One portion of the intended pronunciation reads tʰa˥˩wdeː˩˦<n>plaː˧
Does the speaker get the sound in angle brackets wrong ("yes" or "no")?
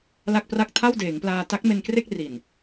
yes